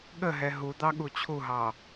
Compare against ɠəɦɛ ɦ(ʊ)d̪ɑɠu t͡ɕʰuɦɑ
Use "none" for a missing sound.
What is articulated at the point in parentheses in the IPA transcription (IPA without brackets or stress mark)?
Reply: u